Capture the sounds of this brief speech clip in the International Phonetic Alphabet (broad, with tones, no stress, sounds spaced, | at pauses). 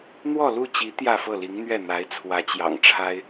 n̪ w ɔ˥˧ l u˥˩ t͡ɕ i˧˥ t̪ j ä˥˧ f ɤ˥˩ l i˧˥ ŋ n̪ ɥ ɛ˥˩ n̪ a˧˥ ɪ̯ t͡sʰ w ä˧˥ t͡ɕ j ɑ̰˨˩ ŋ ʈ͡ʂʰ a˥ ɪ̯